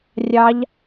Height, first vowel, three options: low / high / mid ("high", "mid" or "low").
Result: low